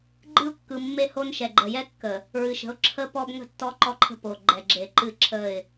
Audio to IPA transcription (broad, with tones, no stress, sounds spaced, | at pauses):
ɡ͡ǃ ɨ˦ ʊ̯ kː ɯ˨ mː e˦ h o˦ n ʃ ɛ˨ ɡ͡ǃ ə˨ j ɛ˦ kː ə˨ | ɹ ɨ˨ ʃ ə̤˨˦ ʊ̯ ǁʰ ə˦ p ɔ˦ b ŋ ə̤˦ tː ɔ˦ ǃ ɔ˦ ǃʰ ə̤˦ p o˨ ɡ͡ǃ ɛ˨ ɡ͡ǁ e˨ ǃ ɨ˦˨ ǁʰ ə˦˨ ɪ̯